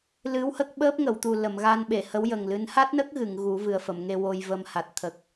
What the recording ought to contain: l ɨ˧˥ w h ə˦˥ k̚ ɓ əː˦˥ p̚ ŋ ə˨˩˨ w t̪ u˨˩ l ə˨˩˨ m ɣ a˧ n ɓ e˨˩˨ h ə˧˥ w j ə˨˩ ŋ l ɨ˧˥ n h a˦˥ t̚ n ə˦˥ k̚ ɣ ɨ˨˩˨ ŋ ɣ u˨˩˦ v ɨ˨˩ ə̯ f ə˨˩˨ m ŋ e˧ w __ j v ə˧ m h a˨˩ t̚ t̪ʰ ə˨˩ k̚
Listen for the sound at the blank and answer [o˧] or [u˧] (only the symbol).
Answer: o˧